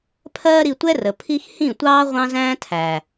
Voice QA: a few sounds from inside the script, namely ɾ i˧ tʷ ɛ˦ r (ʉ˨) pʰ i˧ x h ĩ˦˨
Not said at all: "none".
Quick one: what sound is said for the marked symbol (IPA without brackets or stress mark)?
ə˨